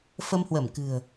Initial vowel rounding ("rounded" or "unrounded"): unrounded